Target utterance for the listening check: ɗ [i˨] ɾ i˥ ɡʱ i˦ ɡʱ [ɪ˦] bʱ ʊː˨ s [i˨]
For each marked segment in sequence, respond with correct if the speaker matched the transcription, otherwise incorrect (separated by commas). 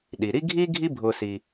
incorrect, incorrect, correct